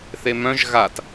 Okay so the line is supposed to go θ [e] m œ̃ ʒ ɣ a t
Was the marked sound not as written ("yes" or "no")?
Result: no